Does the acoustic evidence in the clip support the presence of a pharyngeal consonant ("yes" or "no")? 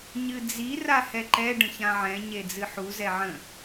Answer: yes